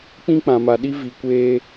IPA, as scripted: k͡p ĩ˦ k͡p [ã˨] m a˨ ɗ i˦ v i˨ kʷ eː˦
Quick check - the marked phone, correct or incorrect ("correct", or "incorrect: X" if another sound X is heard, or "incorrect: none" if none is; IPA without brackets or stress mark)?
correct